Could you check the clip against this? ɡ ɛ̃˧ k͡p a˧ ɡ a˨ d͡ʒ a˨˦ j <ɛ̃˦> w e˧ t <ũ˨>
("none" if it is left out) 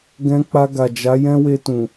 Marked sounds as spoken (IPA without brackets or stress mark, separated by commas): ɛ̃˦, ũ˨